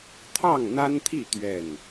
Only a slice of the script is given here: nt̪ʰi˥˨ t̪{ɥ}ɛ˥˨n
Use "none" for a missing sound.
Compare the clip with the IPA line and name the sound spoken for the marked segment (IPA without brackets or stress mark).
ɥ